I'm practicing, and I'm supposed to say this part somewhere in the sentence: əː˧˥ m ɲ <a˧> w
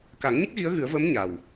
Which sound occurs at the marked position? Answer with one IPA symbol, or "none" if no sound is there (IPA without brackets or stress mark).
a˨˩